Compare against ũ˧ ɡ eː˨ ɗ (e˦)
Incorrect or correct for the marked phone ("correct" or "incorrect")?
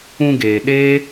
incorrect